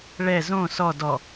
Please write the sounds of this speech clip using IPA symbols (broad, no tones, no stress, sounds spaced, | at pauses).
ɭ ɛ z õ s ɔ d ɔ